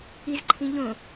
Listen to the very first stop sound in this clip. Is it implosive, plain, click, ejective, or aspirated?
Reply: click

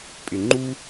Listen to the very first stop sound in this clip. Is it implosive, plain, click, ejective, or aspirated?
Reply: ejective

